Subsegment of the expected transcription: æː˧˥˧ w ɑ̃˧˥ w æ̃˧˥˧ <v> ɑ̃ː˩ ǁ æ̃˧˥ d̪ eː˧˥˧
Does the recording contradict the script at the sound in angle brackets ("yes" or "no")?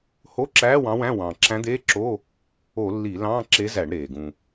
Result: yes